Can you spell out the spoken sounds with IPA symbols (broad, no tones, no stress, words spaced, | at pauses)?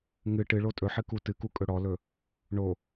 ŋɨ ʈɨɭo tʼɵħɨ kutɨku kʼɵɽɔlɵ | ɳo